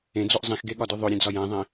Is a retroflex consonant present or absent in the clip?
absent